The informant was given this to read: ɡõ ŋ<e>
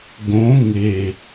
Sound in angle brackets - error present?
no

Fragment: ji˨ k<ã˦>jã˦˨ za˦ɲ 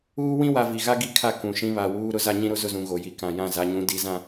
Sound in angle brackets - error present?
yes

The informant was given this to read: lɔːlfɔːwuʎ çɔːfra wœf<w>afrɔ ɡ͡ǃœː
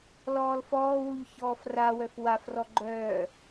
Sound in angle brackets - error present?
no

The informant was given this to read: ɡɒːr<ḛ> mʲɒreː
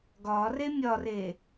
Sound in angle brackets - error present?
yes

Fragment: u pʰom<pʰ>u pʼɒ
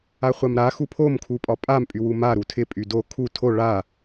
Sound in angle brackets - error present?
yes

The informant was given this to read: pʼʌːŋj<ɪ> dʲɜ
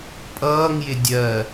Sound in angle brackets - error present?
no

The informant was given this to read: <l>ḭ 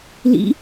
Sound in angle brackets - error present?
no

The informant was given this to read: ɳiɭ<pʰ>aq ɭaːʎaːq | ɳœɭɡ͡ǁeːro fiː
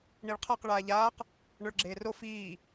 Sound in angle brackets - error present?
yes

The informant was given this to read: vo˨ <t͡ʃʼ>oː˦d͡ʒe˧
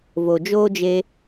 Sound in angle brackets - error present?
yes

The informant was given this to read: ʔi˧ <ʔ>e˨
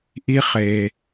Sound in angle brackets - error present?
yes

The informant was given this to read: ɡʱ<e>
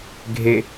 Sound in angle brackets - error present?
no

